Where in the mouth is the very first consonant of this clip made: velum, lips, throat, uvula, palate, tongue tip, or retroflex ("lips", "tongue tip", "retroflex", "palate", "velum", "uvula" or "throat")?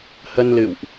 throat